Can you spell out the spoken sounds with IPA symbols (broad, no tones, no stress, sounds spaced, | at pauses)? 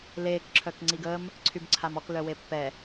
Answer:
l eː k ǁʰ œ k ŋ͡ǀ i ɡ əː m | ǀʰ y b ǀʰ a m ɔ k l œ w e pː ɛ